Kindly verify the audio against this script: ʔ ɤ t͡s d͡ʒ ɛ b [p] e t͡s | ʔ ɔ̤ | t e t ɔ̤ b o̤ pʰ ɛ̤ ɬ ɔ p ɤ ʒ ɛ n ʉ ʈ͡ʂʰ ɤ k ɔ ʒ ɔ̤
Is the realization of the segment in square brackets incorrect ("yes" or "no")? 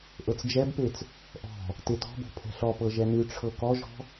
no